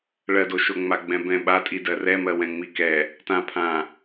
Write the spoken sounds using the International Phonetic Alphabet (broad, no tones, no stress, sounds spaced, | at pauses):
ɭ ɜ d o ʃ o ŋ͡m a ɡ͡b ɛ̃ b ɛ̃ ɓ a tʼ i d ɜ r ɛ m ɜ w ɛ̃ ŋ͡m i k ɛ | t ã pʰ ã